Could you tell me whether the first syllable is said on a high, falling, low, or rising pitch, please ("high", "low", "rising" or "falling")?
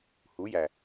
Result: rising